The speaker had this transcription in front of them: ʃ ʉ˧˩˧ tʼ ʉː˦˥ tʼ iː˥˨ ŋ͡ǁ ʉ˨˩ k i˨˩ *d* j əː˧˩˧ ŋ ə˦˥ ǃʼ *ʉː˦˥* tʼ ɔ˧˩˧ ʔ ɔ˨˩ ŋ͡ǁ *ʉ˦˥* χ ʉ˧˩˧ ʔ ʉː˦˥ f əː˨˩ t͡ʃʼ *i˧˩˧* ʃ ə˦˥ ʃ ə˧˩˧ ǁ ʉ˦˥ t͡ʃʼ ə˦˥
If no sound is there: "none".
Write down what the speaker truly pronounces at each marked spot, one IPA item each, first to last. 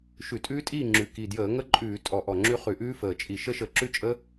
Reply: d, ʉː˧˩˧, ʉ˦˥, i˧˩˧

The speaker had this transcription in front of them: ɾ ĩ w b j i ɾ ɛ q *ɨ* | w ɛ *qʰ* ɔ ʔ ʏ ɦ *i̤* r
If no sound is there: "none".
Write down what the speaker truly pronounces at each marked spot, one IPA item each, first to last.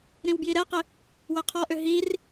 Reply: ɪ, qʰ, i

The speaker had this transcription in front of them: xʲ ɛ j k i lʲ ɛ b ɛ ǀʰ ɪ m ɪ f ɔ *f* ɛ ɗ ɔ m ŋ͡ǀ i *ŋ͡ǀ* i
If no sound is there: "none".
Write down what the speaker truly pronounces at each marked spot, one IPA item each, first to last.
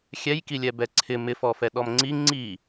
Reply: f, ŋ͡ǀ

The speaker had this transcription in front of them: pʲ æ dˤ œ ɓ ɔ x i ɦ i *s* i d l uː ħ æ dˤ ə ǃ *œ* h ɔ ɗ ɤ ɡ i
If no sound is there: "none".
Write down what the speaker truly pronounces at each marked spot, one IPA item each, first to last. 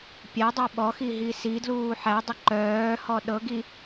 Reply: s, œː

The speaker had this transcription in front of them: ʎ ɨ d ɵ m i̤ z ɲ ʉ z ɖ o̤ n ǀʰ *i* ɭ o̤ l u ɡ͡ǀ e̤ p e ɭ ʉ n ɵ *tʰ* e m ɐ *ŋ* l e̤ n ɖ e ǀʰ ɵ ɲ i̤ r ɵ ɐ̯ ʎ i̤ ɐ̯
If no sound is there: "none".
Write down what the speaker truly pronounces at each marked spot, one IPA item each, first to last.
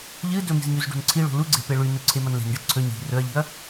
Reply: i, ǀʰ, n

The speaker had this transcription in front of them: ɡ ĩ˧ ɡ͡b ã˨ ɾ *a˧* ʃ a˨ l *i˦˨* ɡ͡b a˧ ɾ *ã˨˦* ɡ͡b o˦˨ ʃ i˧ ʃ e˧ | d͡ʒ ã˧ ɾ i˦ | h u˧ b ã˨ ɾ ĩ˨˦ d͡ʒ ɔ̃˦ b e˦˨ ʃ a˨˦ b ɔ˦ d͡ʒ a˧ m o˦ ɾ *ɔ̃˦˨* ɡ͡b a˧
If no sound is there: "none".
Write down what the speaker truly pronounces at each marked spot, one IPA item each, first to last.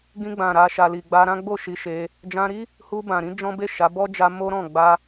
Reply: a˨, i˨, ã˦, ɔ̃˦˨

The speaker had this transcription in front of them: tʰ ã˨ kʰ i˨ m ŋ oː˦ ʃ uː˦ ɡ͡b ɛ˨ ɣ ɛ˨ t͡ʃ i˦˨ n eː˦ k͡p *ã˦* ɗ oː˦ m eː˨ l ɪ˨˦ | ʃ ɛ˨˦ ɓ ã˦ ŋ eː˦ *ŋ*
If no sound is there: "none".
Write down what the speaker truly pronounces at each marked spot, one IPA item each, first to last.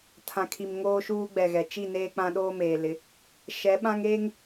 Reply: ã˦, ŋ

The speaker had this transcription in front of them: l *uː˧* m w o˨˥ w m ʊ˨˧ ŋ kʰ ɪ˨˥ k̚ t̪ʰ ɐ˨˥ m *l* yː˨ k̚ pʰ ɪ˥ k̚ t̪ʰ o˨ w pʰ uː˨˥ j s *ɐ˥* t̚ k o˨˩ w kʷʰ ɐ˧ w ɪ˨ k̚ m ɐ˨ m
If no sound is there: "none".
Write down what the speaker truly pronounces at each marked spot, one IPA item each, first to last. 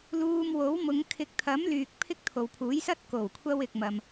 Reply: uː˧, l, ɐ˥

